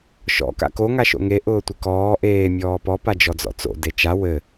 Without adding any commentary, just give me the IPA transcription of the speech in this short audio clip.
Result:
ʃ ɔ̰ k a̰ k o ŋ a ʃ o̰ ŋ e ʔ ʊː tʷ ɪ k ɔː ʔ eː mʲ ɔː p ɔ p a d͡ʒ ɔ d͡z ɔ̰ t͡s o̰ d e t͡ʃ a w ɘ

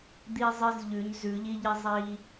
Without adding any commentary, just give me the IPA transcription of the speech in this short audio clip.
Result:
d̪ i˧ zˤ ɨ˧ z ʎ ʉ˩˧ ɲ z ʉ˩˧ ʎ i˧ ʎ i˧ zˤ i˧

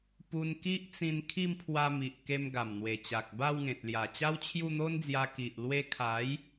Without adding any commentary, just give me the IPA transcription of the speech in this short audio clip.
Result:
p u˧ n k i˦ ʔ t͡s ĩ˧ n kʰ i˥˧ m pʰ w a˧ m i˨ ʔ k e˧ m ɡ a˨˩ m n̪ w e˨˩ t͡ɕ a˨ k̚ b a˥˧ w ŋ ẽ˨ t̚ l j a˨˩ t͡ɕ a˦ w t͡ɕʰ j u˥˧ n̪ o˦ n d͡z j a˧ k i˨ ʔ l w e˧ kʰ a˨˦ j

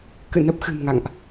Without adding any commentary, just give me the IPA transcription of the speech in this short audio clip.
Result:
k ɨ̰˧˨ n ə˦˥ p̚ x ɨ̤˨˩ m ŋ a̰˧˨ ŋ ʔ

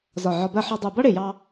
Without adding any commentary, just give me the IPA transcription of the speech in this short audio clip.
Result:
z ɒ˧˩ ʕ ɒ˧ b ɜ˥˧ ħ ɒ˧ dˤ ɜ˧˩ b ʌ˥ ɽ ɪ˧˩ j ɑ˧

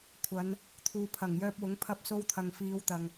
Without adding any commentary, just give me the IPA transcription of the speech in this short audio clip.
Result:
kʷʰ ɐ˨˧ n | t̪ʰ uː˨ pʰ ɐ˨˩ ŋ j œː˧ p̚ w ʊ˨˥ ŋ pʰ ɐ˧ p̚ s o˧ w t̪ʰ ɐ˨ ŋ f iː˨˧ w t̪ ɐ˨ ŋ

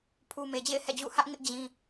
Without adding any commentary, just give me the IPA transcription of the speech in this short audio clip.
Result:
pʰ u˨ m e˨ d͡ʑ ḛ˦˨ ɪ̯ h ɛ̰˦˨ d͡ʑ ṵ˦˨ h ä˦ ʔ ŋ ɪ˦ ʔ d͡ʑ ĩ˦

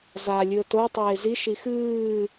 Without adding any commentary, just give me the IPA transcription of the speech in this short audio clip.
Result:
z a lʲ ɨ ə̯ t o tˤ eː z i ʃ i x ɨː

